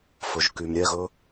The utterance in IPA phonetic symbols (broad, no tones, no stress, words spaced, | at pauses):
fɵʒkymɾʲɛɣɵ